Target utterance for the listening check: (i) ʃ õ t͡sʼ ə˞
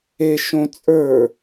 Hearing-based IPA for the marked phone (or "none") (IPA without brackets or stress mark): e